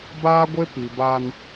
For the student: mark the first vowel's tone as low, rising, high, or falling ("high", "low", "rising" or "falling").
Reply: high